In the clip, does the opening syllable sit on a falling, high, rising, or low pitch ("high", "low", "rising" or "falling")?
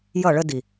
falling